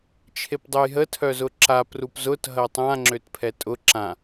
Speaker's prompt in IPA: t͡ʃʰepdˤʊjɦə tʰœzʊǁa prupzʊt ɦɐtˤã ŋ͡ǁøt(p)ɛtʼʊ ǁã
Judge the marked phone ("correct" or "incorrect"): incorrect